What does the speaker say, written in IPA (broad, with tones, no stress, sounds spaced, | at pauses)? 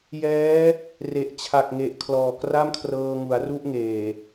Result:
j ɛː˦˥ | r e˨˩ ʔ t͡ɕʰ a˨˩ k̚ ŋ e˨˩ ʔ kʰ l ɔː˨˩ k r a˥˩ m kʰ r ɤː˧ ŋ u˩˦ a̯ r u˥˩ ʔ ŋ eː˨˩